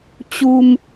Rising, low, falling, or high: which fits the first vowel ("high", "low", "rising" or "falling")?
high